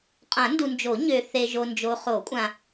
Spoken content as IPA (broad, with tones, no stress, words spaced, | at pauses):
qʼã˨˩˦ndu˨nd͡ʒo˨˩˦ ɲø˨ θe˨ʒo˨ nd͡ʒo˨χo˨˩˦kʷʼã˨